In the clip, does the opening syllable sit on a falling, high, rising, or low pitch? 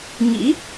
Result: rising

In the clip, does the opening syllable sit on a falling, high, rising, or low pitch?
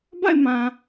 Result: falling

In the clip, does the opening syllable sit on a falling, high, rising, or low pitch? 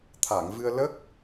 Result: low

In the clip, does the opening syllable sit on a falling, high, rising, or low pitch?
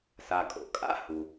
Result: low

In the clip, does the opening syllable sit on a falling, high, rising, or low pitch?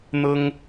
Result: high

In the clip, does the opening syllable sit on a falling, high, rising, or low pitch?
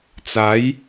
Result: rising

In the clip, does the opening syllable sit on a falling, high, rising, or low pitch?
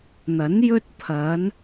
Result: rising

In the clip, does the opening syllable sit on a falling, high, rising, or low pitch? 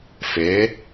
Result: rising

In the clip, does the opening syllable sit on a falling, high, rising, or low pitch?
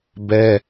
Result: high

